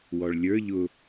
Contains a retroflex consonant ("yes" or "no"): yes